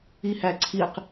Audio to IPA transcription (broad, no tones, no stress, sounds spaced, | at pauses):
i h æ ǀʰ i q